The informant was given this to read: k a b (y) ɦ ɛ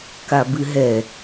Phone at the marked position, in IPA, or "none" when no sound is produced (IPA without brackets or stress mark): ɨ